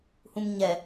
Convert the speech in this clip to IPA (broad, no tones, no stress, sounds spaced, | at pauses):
h ũ m ɲ ɛ